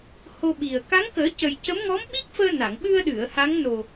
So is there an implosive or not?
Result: yes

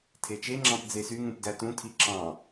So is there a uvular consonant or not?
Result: no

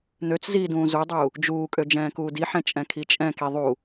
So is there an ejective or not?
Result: yes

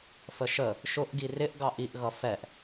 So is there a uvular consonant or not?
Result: no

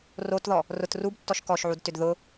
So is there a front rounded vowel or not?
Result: yes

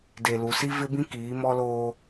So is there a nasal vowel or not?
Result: yes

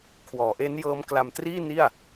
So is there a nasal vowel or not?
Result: no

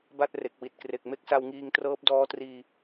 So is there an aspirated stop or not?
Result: no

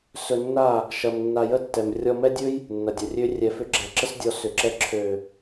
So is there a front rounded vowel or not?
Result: yes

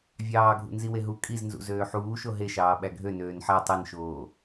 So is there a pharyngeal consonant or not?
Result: yes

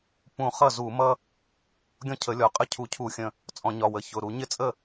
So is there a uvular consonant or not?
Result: yes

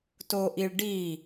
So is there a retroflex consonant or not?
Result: yes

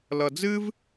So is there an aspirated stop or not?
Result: no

